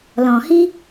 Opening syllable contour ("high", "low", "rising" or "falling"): low